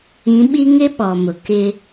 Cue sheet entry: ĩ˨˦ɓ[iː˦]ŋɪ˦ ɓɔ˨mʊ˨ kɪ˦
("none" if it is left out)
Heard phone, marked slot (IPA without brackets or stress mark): i˦